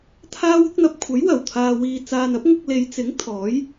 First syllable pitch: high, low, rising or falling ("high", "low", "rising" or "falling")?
high